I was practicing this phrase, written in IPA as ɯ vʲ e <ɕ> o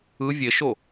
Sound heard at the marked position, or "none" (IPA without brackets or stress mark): ʃ